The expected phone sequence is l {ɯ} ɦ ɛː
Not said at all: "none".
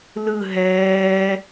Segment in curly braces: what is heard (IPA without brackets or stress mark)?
ɯ